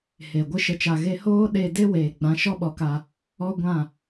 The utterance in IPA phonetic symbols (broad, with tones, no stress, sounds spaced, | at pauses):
h e˨ ɡʷ ɨ˦ ʃ ə˧ t͡ʃ a˧ ɣ e˦ h oː˦ ɗ eː˧ d e˦ w eː˨ ɡ͡b ã˨˦ ʃ ɔ˦ ɓ ɔ˨˦ k a˧ | ɔ˦ ɡʷ ã˦˨